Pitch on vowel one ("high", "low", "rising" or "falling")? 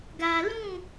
low